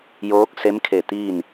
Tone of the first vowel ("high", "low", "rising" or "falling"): rising